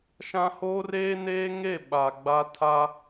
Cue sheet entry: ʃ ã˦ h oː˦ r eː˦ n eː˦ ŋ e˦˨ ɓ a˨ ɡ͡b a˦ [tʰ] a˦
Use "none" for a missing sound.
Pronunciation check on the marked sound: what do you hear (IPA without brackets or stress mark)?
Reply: tʰ